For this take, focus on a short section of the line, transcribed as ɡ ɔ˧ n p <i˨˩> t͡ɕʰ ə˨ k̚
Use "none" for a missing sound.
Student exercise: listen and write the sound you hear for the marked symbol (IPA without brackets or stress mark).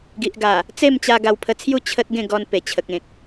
e˨˩